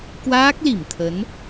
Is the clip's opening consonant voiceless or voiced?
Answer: voiceless